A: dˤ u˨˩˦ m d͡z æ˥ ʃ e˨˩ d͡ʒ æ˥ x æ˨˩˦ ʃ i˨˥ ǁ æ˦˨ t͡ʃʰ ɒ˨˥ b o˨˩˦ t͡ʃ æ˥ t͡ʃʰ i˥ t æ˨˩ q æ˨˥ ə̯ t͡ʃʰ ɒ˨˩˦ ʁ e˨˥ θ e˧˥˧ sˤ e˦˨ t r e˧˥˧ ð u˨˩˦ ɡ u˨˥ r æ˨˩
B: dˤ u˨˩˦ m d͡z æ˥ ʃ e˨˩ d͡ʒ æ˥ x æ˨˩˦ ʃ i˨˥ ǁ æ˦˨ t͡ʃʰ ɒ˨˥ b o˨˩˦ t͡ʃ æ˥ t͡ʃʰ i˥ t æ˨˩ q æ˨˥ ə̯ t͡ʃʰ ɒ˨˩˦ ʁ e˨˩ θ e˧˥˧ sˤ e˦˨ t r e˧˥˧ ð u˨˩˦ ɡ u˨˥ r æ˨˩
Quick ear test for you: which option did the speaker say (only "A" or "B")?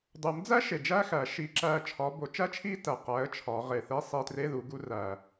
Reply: B